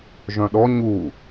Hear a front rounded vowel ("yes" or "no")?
yes